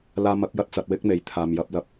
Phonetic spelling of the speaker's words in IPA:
laː˧mɐ˨˥k̚jɐ˧t̚ t͡sɐ˧t̚wɪ˥k̚me˨j t̪ʰaː˨mjɐ˧p̚lɐ˧p̚

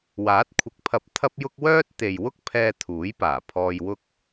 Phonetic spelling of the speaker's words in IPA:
waː˨˥t̚kʷʰɪ˨˥k̚pʰɐ˧p̚ t̪ʰɐ˥p̚jʊ˥k̚ wœː˥t̚t̪e˨j wʊ˥k̚pʰɛː˧ t̪ʰuː˨˥jpaː˨˩ pʰɔː˧jwʊ˥k̚

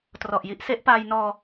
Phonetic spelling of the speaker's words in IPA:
trɔ˨˩ʔji˦˥ʔ se˦˥ʔpaː˧jnɔː˧

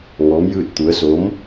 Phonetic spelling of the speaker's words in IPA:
ŋɔː˧˥mjɯː˥˨t̚t̪u˧˥ə̯ so˧˥m

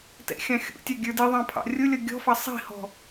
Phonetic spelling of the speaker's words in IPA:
tɛ̰xʲɑ̃xʲṵtʲɑ ɡʲə˞diðˤɑ̃ pʰɑ̰rʲʊlʲʌ ɡʲɔ̤fɑ sˤi̤hɔ̤

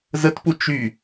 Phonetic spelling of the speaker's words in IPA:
zətpu t͡ʃy

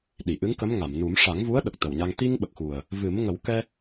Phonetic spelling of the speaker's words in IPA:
ɗi˨˩˨ʔɨ˧˥ŋkə˧˥m ŋa˨˩˨mnu˨˩˦m ʂa˨˩˦ŋvu˧˥ə̯ ɗə˨˩k̚t̪ə˨˩wɲa˧ŋ t̪i˧ŋ ɓə˨˩k̚xu˨˩ə̯ | vɨ˨˩˦mŋə˨˩˦w kɛ˧

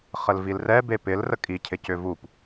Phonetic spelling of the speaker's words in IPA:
χəlvilrɛbe pɪl rəkʼicʰɪcʏ vup

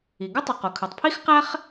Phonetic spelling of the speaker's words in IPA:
i˩ɡo˥tˤi˩q o˩kʰɯ˩tˤ pʰi˥xqæ˥χ

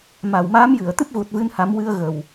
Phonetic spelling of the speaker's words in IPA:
ma˨˩wmaː˧˥mjɨ˨˩˨ə̯ t̪ɨ˦˥p̚ɣu˨˩t̚vɨ˧nha˨˩˦m wɨ˧ə̯ ɣə˨˩w

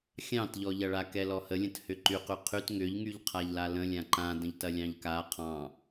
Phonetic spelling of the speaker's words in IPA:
xʲɑ̃tʎɔʎɐɭa kɛlɔhəlʲə̃t hʏǃy qyqʰyt ŋʏʎŋyʎ qʰaʎlalə̃lʲã ǃã də̃ʎtɐlʲɑ̃ʎka qʰɑ̃

